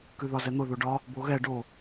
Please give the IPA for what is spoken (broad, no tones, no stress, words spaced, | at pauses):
kʉðɒzɛn̪ʊ ðoɖɒ | boɣɛ ɖo